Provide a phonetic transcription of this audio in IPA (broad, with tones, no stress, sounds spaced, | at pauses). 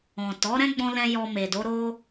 ɔ̃˨ t ɔ˨˦ ɾ ɛ̃˦ ɡ͡b ɔ̃˧ l ɛ̃˧ j ɔ˧ m e˨ d o˨˦ ɾ o˦